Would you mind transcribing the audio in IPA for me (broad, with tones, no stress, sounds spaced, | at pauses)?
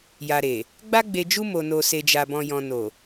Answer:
j a˨ ɾ e˨ | ɡ͡b a˧ ɡ͡b e˨ d͡ʒ u˧ m o˨ n o˨ s e˨ d͡ʒ a˨ b ɔ̃˨ j ɔ̃˨ n o˨